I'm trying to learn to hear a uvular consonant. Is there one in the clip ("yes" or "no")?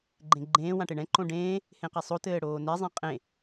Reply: yes